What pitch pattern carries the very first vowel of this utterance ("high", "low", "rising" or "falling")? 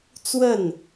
falling